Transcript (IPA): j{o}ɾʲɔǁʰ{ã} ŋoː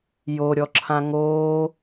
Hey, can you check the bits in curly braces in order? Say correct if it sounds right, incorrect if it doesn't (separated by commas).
correct, correct